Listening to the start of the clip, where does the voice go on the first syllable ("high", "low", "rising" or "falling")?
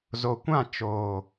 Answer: low